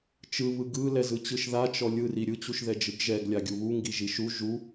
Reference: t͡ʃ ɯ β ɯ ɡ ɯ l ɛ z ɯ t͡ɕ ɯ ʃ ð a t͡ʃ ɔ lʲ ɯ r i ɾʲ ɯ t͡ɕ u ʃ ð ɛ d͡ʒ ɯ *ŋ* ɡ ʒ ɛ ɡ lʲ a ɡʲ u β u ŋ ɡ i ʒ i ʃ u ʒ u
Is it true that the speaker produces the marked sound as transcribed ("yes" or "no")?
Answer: no